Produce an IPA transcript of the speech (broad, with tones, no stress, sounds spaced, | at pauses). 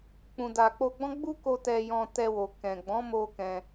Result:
k͡p ũ˨ d a˨ k͡p o˧ ɡ͡b ɔ̃˦ ɡ͡b u˦ k o˧ t ɛ˧ j ɔ̃˧ t ɛ˧ w o˨ k ɛ̃˨ ɡ͡b ɔ̃˨˦ m o˧ k ɛ̃˧